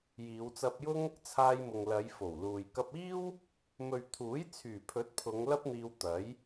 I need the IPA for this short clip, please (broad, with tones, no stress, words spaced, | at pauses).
jiː˨˧wt͡sɐ˧p̚jʊ˥ŋ | t͡sʰaː˧jmʊ˨ŋlɐ˨˧j fo˨˩wluː˨j kɐ˧p̚iː˥w | mɵ˨ɥt̪ʰuː˨˥jt͡sʰyː˨˩pʰɵ˨˥t̚ pʰʊ˨˧ŋ lɐ˥p̚n̪iː˧wt̪ɐ˨˥j